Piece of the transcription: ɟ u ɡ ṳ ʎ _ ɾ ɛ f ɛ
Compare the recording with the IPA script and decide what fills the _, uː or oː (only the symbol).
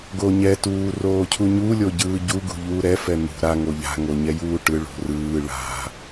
uː